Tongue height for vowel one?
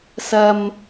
low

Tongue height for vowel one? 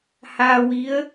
low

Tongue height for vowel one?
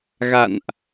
low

